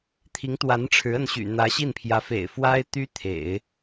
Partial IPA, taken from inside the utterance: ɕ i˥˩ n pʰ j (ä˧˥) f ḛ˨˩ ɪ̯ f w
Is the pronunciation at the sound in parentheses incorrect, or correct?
correct